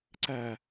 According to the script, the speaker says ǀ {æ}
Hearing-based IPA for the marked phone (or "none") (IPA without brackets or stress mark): æ